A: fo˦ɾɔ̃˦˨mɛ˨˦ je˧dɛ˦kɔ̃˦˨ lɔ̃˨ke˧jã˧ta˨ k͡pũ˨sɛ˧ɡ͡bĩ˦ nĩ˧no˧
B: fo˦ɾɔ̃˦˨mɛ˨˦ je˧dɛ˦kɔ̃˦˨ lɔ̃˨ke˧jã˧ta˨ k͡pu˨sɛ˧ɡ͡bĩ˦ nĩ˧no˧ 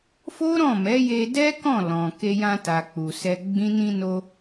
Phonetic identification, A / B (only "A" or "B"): B